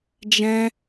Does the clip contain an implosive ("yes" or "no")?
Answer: no